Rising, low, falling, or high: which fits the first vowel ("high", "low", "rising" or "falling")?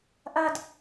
high